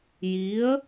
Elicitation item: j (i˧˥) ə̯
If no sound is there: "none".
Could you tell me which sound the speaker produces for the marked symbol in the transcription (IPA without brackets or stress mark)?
i˧˥